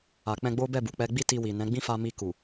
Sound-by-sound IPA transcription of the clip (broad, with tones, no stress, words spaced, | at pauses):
a˨k͡pɛ̃˧ɡ͡bo˦ bɛ˦˨bu˨ k͡pɛ˧ɡ͡bi˦ ti˧wi˨ nɛ̃˨˦ɡ͡bĩ˦fa˧ mi˧ku˨